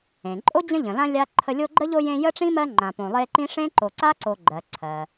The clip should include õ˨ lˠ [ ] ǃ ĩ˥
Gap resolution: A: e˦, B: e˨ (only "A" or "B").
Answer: A